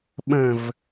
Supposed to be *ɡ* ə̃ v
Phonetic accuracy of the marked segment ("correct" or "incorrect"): incorrect